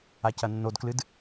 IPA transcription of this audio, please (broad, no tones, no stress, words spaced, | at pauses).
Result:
acɐnːodklɨd